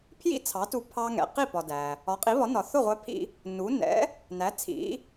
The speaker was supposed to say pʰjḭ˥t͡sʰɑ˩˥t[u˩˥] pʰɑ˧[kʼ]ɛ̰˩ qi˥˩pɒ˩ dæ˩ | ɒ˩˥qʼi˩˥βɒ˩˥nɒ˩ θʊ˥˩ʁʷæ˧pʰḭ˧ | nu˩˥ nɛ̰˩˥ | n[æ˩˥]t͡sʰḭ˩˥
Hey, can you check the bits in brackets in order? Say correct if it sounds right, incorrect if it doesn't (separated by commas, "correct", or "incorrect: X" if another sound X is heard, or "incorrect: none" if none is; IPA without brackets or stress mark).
incorrect: u˧, incorrect: ŋ, correct